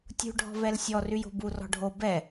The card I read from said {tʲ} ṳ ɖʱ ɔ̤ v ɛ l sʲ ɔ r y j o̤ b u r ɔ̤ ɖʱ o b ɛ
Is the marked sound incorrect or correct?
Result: correct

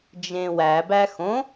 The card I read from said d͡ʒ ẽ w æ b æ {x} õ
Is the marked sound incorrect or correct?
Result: correct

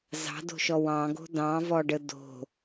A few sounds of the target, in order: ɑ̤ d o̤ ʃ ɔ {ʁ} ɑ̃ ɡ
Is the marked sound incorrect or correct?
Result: incorrect: w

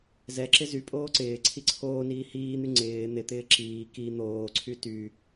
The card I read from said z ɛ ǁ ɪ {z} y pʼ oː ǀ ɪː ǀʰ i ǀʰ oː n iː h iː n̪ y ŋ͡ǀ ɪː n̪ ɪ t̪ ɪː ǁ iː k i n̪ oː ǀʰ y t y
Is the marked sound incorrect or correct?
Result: correct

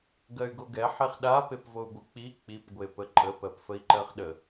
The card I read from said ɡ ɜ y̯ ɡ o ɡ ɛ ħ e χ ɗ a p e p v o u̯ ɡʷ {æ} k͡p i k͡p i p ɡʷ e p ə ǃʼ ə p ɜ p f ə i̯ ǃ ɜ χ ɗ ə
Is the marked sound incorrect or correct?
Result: incorrect: ə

